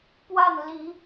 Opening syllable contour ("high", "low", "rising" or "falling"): falling